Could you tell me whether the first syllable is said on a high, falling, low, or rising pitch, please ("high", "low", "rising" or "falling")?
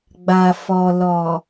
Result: low